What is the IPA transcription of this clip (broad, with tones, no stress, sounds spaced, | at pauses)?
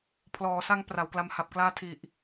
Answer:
pʰ l ɔː˩˦ s a˧ ŋ p r a˩˦ w k l a˧ m h a˨˩ p̚ k l aː˥˩ tʰ i˨˩ ʔ